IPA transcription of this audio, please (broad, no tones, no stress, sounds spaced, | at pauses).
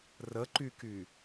r ə ǃ y k y